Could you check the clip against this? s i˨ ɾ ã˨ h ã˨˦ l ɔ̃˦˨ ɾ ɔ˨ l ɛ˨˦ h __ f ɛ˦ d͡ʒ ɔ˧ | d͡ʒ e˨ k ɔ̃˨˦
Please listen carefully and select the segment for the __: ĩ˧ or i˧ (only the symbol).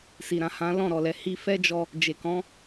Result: i˧